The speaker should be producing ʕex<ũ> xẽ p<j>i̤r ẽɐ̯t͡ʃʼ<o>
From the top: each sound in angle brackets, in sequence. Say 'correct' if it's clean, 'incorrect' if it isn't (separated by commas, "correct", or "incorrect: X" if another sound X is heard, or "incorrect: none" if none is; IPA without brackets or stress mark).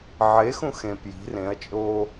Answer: correct, correct, incorrect: oː